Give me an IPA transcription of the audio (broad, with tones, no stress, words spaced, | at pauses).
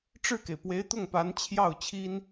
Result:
ʈ͡ʂɻ̩˥˩ke˩ɪ̯pwe˧˥ɪ̯t̪ʊ˥˩ŋ pa˧˥nt͡ɕʰjɑ˥˩ʊ̯t͡ɕʰi˥n